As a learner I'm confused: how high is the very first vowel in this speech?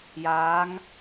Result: low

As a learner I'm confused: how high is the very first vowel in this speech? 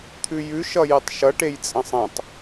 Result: high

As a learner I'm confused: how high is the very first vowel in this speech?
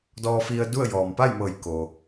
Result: mid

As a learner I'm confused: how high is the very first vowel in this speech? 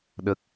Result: mid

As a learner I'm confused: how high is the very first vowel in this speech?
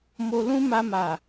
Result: mid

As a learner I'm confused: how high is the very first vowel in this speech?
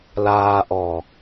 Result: low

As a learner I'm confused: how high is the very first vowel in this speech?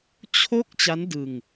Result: mid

